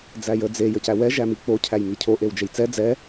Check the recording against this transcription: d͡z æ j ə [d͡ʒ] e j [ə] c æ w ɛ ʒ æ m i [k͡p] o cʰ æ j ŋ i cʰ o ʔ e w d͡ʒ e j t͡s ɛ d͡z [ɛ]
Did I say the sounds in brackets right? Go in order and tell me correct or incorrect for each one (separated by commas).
incorrect, correct, correct, correct